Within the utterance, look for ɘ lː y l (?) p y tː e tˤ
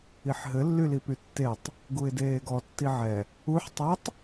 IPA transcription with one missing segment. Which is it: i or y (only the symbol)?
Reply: i